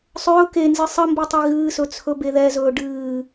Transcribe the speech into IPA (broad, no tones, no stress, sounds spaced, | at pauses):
sˤ ɵː k e n z ɨ sˤ ə m b i tˤ i ɣ ɨː s ɵ t͡sʰ ɵ b e ð ɛ z ɵː ɖ ɨː